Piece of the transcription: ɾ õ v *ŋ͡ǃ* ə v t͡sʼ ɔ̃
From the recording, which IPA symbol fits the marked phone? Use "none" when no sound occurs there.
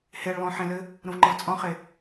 ŋ͡ǃ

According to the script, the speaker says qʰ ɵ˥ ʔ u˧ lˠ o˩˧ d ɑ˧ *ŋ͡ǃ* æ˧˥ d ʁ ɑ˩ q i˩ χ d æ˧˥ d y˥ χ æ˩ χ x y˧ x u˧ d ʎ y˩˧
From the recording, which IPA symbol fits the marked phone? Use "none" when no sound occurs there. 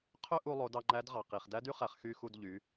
ŋ͡ǃ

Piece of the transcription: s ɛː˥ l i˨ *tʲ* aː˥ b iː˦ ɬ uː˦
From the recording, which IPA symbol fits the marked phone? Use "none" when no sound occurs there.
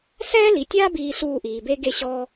tʲ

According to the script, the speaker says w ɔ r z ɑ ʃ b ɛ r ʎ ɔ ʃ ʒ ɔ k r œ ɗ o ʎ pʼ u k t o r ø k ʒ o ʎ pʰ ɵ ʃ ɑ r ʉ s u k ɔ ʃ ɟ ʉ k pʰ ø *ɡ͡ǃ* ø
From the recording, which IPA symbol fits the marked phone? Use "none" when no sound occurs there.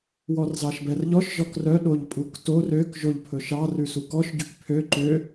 ǃ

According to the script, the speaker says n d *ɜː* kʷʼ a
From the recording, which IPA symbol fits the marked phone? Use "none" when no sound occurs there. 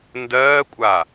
ɜː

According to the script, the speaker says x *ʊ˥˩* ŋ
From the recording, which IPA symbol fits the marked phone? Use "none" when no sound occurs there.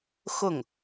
ʊ˥˩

